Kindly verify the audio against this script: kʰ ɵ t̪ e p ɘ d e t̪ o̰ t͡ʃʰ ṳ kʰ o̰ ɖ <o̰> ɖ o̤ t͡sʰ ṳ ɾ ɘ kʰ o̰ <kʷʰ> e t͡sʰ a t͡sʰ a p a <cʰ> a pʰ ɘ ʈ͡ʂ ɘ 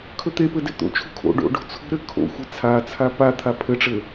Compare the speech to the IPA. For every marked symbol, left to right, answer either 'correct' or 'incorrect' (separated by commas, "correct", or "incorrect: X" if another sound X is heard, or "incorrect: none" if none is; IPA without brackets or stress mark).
correct, incorrect: xʷ, incorrect: t̪ʰ